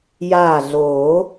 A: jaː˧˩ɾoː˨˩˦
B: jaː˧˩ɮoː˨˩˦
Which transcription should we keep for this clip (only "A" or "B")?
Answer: B